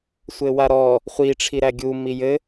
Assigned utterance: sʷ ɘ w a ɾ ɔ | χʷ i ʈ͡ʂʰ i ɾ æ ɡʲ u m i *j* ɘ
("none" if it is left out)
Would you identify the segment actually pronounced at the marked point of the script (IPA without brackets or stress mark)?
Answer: j